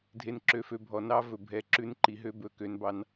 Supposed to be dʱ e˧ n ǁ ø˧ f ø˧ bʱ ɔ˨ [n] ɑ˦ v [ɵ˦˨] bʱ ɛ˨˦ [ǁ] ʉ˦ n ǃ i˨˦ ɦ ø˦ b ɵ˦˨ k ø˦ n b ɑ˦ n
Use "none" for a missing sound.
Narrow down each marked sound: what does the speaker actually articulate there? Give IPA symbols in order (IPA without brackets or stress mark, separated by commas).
n, ɵ˨, ǁ